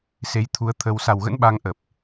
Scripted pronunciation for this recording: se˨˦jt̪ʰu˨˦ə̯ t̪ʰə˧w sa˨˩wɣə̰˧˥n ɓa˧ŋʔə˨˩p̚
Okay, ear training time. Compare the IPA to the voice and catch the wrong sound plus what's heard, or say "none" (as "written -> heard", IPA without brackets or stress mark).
none